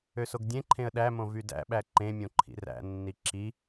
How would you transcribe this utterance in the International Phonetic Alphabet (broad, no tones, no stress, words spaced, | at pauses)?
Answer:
øsoɡdʲẽǃʰẽə̯ ɗæmõ vydæ̰ɓæ ǃẽmʲõ ǃʰḭræ̰nːi ǁi